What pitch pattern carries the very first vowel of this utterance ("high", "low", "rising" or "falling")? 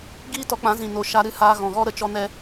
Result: high